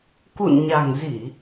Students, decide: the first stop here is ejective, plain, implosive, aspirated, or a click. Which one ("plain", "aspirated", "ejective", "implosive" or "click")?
plain